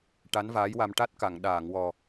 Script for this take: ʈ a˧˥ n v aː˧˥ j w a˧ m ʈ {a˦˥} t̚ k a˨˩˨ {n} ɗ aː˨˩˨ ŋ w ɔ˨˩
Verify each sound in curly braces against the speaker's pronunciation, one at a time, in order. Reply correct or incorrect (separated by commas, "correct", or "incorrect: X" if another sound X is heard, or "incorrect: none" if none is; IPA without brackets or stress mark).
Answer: correct, incorrect: ŋ